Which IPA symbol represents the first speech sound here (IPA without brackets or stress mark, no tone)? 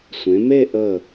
sʷ